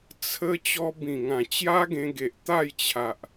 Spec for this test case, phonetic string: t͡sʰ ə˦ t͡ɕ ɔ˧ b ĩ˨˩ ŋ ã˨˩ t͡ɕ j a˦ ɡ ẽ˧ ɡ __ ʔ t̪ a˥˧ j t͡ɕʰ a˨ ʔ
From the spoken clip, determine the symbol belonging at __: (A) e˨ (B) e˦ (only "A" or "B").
A